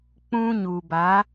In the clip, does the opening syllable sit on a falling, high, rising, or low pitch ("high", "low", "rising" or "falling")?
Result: high